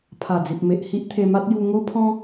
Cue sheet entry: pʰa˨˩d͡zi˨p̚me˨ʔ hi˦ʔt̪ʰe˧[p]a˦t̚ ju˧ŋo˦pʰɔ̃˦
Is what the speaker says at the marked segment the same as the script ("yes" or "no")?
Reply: no